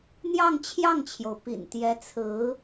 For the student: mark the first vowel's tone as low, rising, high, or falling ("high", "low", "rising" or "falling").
falling